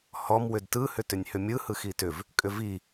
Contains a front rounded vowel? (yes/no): yes